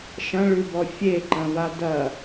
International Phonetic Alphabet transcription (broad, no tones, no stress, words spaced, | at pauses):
ʃɐ̃ɭʉbɔ fʲeǃɐ̃va dɐ